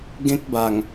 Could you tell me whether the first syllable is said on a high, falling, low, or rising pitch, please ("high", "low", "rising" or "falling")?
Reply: high